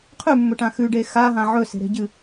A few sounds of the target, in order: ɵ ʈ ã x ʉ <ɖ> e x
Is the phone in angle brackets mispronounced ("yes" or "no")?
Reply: no